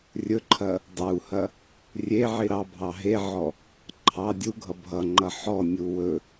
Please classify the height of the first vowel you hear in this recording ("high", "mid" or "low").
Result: mid